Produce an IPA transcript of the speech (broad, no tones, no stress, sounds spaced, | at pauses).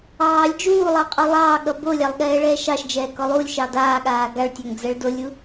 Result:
ɑː lʲ d͡ʒ uː lˠ ɑ qʼ o lˠ ɑː ɠ ʌ b o lʲ ɑ lˠ ɠ ɛː ɭ ɛː ʃ ɑ ʃ d͡ʒ ɛː k ɔ lˠ uː lʲ ʃ ɑ d aː ɠ aː ɡ a ɭ tʲ a ŋ d͡z ɛ ɭ d o lʲ u